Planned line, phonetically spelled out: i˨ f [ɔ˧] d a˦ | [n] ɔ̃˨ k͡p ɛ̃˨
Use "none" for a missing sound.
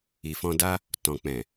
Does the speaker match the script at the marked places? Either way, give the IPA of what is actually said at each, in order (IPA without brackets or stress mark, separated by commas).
ɔ̃˧, t